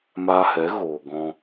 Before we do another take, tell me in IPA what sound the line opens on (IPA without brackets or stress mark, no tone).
m